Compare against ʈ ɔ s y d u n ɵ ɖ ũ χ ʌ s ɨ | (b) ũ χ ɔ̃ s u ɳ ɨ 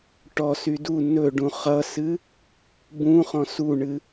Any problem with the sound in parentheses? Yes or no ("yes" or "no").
no